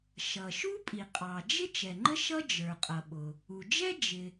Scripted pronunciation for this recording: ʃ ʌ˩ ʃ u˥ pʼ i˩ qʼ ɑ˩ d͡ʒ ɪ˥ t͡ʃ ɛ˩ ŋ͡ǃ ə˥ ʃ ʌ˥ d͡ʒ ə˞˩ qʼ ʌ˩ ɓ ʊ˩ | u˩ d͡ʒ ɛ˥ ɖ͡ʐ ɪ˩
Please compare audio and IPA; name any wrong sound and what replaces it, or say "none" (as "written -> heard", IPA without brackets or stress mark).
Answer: ɖ͡ʐ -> d͡ʒ